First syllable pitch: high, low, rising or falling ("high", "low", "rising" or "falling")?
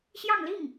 falling